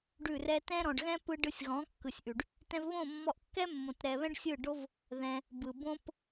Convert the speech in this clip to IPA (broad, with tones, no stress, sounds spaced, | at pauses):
ɖ ʉ˦˨ r ɛ˦ t ɛ̃˦ ɾ ɔ̃˨ ɖ ɣ ɛ̃˦ p ɯ˧ ɖ ɯ˧ sʲ ɣ ɔ̃˨˦ kː ɯ˨ sʲ ʔ ʉ˨ ɖ | t ɛ̃˧ v β õ˦˨ mː ɔ˧ ʔ kː ɛ˦ mː õ˨ t ɾ ɛ˨ β ɛ̃˦ ɖ sʲ ɯ˦˨ ɖ o˦ v | ð ɛ̃˧ | b ɯ˨ b õ˦ p